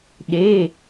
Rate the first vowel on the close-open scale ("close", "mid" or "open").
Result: mid